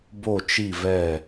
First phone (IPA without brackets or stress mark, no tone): b